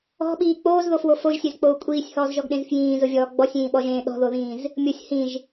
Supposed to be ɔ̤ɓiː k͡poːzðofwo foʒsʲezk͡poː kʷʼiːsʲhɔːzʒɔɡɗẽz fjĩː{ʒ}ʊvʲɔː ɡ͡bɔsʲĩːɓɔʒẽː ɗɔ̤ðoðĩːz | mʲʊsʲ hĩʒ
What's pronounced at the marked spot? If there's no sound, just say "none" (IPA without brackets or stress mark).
z